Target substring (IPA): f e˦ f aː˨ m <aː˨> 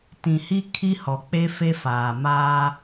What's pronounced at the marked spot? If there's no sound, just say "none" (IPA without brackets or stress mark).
aː˦